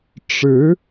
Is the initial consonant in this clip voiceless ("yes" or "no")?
yes